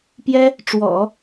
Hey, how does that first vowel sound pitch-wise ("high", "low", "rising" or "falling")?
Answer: high